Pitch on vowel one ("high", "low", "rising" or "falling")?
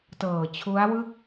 low